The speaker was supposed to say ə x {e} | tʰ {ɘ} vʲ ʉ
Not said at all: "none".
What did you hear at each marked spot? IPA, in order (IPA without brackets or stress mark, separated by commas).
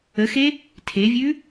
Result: e, e